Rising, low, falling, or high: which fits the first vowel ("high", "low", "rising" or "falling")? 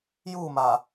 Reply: falling